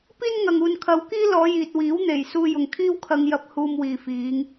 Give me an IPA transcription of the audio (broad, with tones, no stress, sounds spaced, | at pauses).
p iː˥ n ŋ ɐ˨ ŋ uː˨ n kʰ ɐ˨˧ w k iː˥ l ɔː˨˧ j iː˨ t̚ w iː˨˥ w n̪ e˨˩ j s uː˧ j ʊ˨ ŋ kʰ iː˥ w kʰ ɐ˧ ŋ j ɐ˧ p̚ h uː˧ m w iː˨ f iː˨˧ ŋ